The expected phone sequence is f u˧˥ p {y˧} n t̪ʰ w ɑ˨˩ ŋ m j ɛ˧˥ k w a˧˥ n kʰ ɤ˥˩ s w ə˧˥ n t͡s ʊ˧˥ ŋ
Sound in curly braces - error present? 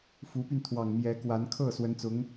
no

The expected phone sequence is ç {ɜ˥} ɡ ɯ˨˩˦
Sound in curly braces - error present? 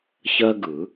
no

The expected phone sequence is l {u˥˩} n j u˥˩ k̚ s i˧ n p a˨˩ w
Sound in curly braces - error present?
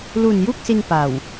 yes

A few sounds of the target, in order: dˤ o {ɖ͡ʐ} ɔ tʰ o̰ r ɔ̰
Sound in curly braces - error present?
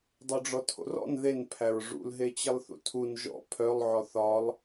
no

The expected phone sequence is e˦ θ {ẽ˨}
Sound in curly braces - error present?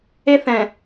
yes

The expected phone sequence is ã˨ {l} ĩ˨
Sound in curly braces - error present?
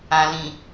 no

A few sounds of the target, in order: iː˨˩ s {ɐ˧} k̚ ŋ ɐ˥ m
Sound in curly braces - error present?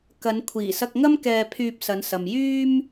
no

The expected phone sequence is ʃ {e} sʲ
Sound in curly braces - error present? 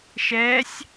yes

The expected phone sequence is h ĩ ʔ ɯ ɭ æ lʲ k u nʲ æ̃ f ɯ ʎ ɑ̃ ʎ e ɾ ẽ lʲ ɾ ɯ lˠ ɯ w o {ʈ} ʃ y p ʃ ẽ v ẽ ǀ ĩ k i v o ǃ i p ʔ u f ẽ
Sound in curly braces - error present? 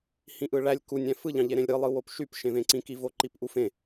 yes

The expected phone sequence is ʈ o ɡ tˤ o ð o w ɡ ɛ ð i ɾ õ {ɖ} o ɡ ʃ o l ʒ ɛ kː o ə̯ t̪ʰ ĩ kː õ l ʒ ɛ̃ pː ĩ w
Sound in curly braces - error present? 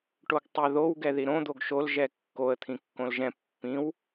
yes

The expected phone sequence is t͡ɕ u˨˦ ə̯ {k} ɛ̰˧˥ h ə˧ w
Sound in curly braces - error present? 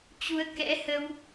no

